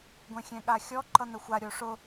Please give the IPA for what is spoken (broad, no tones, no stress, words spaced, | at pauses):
ɡʷɛ̃xʲɛ̃ɠaxʲɔ ǃʌn̪əxʷa ɾʲoʂʊ